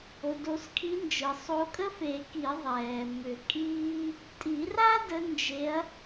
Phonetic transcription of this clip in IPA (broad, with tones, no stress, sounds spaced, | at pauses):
o˩ d o˨˩˦ s kʰ i˨˦ n d͡ʒ ɯ˩ sˤ o˨˦ kʼ ə˥ f e˨˩˦ k i˨˩˦ ðˤ ɛː˩ m ʏ˨˩˦ kʼ iː˥ | tʼ i˨˩˦ r a˥ d ə˨˦ n d͡ʒ e˨˦ ɐ̯